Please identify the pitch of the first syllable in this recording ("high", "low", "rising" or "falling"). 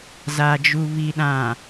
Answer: low